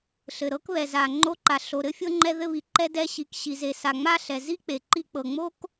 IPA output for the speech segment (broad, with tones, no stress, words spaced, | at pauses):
ɬɘ˩ɾɤ˥kβɛ˩ za˩ ŋ͡ǃo˧ǃa˩ ɬo˩ɾɘ˥fʲɤ˧ ŋ͡ǃɛ˧ ðɘ˧βi˩ǃɛ˧ dɛ˧ɕi˩k ɕi˩ze˩sa˩ ŋ͡ma˥ɬɛ˩ zi˥k͡pe˩ǃi˧k͡pɤ˩ ŋ͡mo˥k